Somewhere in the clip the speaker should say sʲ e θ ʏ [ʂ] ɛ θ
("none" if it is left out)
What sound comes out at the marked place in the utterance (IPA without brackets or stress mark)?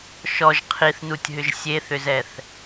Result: z